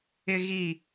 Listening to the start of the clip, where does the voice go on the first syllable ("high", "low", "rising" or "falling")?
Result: high